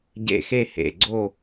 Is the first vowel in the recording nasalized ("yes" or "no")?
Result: no